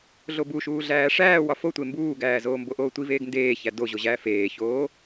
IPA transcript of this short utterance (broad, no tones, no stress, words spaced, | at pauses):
ɮobuʃuː ɮæːʂæːw ɒfotʷe mbuːɡæːzoː mboʔoːtʷiv eːɡndeːçæ doʑo ʑæːfeːçoː